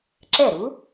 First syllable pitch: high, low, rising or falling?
falling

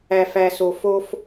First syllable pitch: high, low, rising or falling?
low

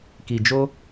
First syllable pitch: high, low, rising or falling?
low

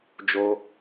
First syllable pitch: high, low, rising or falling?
high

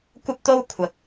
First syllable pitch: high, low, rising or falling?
high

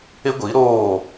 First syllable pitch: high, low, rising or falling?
high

